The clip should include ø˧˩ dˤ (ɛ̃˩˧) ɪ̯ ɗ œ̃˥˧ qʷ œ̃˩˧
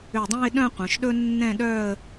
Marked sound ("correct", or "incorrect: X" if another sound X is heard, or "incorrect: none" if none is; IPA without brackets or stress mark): incorrect: ɛ̃˥˧